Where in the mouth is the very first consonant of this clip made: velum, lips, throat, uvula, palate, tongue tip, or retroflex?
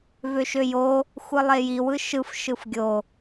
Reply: lips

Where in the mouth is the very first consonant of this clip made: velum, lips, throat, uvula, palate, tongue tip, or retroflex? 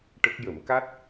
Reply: retroflex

